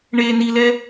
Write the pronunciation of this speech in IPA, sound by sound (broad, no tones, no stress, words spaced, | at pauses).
ɳe nilɛ